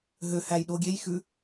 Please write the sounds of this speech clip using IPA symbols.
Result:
ɦ ø h æ j ɗ o ɡʲ e j x ʉ

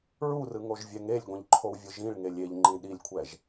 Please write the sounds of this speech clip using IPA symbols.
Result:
ɹ u r ɯ ŋ o ʒ vʲ ɛ ŋ e lʲ ɡʷ ĩ ʎ ǃʰ o w vʲ ɯ ʒ ĩ ɭ ŋ e lʲ e ʎ ŋ͡ǃ ĩ ɗ i lʲ kʷʰ ɛ ʒ

